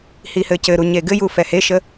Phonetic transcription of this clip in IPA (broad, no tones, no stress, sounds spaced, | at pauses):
h i h ɘ c ɘ ɾ u ɲ e ɡ ɘ j u f ɛ h e ʃ ə